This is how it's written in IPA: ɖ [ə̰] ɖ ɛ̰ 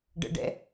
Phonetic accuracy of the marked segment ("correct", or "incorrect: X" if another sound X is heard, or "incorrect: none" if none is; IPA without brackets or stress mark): correct